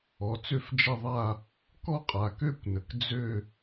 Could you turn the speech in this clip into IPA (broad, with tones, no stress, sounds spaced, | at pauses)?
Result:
ɔ˩˧˩ t͡s ø˥˧ f d͡ʒ ɐ˥˧ ðˤ a˥˧ | k ɔ˥˧ qʼ a˩˧˩ k ø˥˧ kʷ n ə˩˧˩ k d͡z ø˥˧